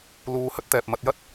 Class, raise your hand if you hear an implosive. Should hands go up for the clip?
no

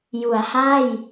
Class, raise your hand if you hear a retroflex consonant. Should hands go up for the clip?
no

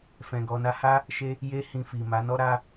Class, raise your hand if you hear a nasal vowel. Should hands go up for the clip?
yes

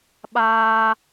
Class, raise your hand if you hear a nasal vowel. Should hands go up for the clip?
no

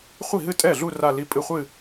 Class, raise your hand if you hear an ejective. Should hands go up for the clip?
yes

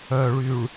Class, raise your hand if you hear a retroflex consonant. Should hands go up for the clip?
yes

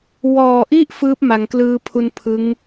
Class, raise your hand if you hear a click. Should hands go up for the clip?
no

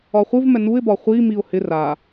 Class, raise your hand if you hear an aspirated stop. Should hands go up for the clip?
no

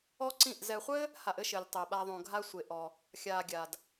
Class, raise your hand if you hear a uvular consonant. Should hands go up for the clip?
yes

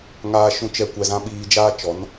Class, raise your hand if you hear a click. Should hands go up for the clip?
no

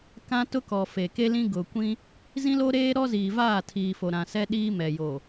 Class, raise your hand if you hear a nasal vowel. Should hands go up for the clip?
yes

